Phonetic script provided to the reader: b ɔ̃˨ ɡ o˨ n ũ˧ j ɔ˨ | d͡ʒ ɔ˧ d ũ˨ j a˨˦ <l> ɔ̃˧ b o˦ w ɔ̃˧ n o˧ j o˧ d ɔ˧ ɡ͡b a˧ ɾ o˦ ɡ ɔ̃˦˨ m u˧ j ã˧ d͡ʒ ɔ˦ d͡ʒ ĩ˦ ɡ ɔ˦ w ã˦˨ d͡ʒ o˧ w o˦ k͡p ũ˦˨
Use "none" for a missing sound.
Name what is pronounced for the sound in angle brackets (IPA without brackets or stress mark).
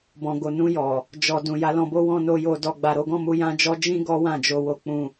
l